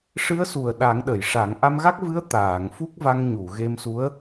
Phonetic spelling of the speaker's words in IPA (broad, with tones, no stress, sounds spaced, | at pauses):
ʂ ɨ˧˥ ə̯ s u˨˩ ə̯ ɗ a˨˩˦ ŋ ɗ ə˨˩˨ j ʂ a˨˩˦ ŋ ʔ a˧ m ɣ a˦˥ k̚ v ɨ˧˥ ə̯ t̪ aː˨˩˨ ŋ f u˦˥ k̚ v a˧ ŋ ɲ u˨˩˨ ɣ e˧ m s u˧˥ ə̯